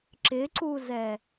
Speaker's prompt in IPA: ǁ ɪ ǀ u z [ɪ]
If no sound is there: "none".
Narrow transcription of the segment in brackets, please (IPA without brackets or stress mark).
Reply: ɛ